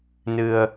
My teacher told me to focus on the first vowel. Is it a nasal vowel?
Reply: no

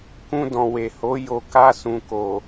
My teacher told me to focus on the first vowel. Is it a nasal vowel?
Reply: yes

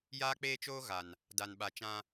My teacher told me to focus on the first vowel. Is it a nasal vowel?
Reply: no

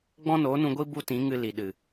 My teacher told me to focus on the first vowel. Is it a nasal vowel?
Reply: yes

